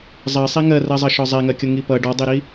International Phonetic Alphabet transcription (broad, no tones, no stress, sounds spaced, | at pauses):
zˤ ɜ sˤ i ŋ ɜ r ɜ zˤ ʌ ʃ ɔ zˤ ɛ ŋ ɜ kʲ ʊ ŋ i p ʌ ɖ ɔ dˤ i ɾ i